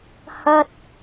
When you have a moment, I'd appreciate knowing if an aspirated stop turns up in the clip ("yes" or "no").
no